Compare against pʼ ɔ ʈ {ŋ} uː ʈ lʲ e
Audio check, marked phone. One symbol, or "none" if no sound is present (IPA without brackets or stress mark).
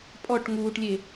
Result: ŋ